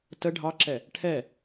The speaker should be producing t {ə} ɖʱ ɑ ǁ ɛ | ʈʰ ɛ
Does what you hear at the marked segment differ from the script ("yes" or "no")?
no